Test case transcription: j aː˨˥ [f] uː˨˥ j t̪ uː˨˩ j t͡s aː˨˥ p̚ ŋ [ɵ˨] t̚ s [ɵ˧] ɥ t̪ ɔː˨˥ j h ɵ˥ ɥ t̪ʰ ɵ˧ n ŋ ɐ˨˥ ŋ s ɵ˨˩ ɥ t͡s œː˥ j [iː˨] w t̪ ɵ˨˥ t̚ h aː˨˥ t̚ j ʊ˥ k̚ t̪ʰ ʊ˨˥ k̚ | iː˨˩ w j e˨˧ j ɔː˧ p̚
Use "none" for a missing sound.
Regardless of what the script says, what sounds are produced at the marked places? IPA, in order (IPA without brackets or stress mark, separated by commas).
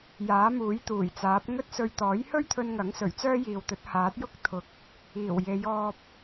m, ɵ˥, ɵ˧, iː˨